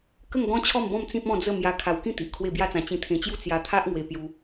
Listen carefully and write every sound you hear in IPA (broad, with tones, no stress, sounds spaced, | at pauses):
k ə˥˧ ŋ ɡ ɔ̃˦ t͡ɕʰ ɔ˥˧ m b ɔ̃˥˧ m t͡s ĩ˦ p̚ ɔ̃˥˧ d͡z ə˥˧ m j a˧ kʰ a˧ w k ĩ˥˧ t̪ i˨ ʔ kʰ w e˥˧ b j a˥˧ t͡s ã˧ t͡ɕ ĩ˧ t̪ʰ ẽ˧ t͡ɕ j u˥˧ t͡s j a˧ t̪ʰ a˦ ʔ ŋ w e˧ p j u˧